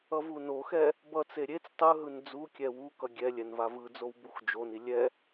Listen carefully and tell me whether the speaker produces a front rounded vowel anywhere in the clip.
no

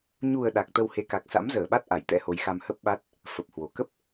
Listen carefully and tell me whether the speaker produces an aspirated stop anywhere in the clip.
no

